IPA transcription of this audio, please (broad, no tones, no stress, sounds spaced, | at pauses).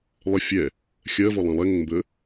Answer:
lˠ ɪ fʲ ɛ | xʲ ɜ v ɔ lˠ ɛ̃ lˠ ɛ ŋ ə ŋ m b ə